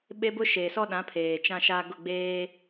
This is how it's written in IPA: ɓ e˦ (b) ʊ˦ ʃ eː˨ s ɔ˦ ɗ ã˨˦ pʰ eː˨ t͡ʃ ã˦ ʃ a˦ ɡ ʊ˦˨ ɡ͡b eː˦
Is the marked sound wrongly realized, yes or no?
no